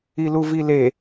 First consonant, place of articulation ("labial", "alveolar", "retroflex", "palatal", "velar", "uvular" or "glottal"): alveolar